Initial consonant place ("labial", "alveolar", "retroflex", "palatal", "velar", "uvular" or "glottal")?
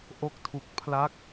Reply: glottal